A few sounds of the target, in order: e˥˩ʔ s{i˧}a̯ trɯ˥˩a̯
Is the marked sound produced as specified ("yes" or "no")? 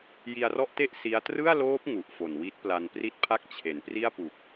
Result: no